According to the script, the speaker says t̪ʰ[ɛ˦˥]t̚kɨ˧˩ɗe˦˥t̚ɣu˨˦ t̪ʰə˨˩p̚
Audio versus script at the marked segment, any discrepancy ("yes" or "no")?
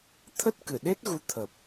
yes